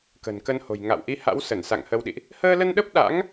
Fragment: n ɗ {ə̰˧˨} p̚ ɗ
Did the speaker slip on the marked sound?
yes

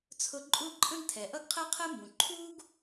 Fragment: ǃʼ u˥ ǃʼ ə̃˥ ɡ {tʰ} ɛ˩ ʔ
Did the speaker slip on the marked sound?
no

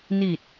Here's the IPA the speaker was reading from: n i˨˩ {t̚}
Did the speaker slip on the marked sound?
no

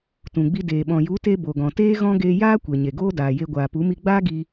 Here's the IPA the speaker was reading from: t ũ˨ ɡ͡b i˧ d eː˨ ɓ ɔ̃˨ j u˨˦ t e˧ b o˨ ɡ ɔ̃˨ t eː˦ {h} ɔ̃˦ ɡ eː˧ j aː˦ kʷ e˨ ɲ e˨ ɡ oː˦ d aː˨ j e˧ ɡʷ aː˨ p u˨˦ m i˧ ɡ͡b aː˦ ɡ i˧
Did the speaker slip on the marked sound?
yes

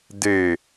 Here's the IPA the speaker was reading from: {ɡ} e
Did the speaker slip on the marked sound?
yes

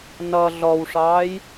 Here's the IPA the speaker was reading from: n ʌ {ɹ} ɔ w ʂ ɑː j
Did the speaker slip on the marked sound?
yes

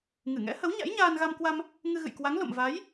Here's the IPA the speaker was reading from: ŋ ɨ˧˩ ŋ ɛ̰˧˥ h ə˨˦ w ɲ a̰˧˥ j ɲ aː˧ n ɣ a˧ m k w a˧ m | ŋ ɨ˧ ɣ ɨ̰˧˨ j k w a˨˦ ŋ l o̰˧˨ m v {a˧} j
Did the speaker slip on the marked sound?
yes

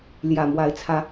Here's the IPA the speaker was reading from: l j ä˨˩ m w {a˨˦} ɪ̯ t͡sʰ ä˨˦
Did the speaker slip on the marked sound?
no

